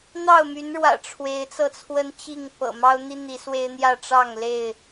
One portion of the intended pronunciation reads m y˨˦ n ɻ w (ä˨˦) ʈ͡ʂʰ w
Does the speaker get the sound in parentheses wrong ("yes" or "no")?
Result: yes